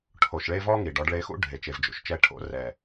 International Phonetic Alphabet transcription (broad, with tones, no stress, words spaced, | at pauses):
ʈʰo˨ʃɭe˧ vɔ˦ŋi˨ɖ ɔ˧ɖɭe˧xṵ˦ ɖʱe˨t͡ʃe˨vd͡ʒṵ˨ʃt͡ʃɛ˧ ʈʰo̰˧rɛ˨